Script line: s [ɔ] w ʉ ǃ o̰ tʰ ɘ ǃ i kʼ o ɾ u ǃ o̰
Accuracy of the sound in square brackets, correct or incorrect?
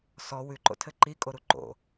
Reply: correct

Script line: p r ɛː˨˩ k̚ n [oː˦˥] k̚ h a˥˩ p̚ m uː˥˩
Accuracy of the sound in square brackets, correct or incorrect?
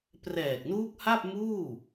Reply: incorrect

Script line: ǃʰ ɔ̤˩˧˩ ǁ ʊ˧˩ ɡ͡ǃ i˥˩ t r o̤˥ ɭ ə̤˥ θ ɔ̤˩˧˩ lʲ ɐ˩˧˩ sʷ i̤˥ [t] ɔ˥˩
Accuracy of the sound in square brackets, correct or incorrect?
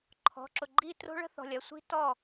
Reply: correct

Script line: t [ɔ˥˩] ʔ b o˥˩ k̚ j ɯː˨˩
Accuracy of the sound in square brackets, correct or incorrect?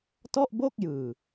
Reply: correct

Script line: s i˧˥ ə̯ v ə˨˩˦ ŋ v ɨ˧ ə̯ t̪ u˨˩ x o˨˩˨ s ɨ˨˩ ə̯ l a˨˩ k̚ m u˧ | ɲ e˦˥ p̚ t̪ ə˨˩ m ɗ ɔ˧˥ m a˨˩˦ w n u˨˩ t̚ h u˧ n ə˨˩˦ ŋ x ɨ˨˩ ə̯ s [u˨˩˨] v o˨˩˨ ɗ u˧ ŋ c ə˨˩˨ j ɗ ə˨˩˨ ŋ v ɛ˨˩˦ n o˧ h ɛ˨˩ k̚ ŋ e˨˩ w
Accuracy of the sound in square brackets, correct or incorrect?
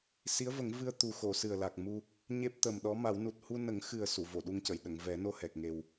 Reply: correct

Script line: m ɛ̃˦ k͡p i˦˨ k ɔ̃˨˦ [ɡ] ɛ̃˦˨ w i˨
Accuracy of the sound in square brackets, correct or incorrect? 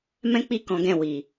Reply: correct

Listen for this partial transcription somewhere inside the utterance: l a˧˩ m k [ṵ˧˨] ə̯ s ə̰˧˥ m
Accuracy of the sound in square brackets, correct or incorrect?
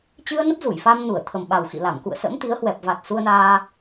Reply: correct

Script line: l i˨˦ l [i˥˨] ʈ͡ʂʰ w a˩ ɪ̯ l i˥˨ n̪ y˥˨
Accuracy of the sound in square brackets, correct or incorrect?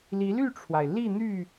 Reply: incorrect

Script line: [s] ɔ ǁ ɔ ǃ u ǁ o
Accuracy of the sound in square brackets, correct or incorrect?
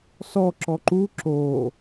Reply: correct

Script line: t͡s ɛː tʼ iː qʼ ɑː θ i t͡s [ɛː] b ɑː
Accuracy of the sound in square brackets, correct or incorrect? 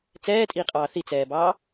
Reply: correct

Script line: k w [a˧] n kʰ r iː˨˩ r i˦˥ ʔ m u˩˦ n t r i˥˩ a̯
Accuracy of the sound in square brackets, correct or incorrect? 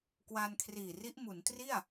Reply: correct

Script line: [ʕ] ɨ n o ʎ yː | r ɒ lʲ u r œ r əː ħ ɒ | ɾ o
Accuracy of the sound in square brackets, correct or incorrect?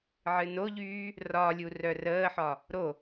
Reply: correct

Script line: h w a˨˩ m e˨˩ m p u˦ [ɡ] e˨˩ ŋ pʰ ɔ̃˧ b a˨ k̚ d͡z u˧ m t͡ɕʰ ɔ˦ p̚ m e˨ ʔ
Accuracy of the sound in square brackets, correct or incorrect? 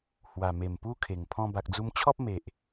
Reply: incorrect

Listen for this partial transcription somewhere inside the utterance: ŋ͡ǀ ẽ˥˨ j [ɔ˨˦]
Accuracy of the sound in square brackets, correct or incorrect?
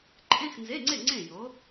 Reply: incorrect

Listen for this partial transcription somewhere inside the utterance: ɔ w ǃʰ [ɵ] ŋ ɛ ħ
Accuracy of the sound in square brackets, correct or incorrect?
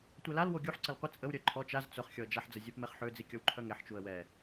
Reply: incorrect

